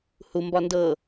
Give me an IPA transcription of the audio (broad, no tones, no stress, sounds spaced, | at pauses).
h u m b ɒ n d ɤ